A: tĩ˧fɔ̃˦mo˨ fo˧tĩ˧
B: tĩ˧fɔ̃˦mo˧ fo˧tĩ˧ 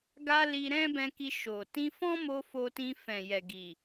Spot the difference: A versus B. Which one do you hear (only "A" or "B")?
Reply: B